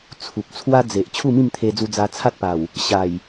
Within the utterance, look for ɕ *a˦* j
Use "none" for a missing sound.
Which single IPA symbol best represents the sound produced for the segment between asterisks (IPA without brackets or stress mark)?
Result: a˨˩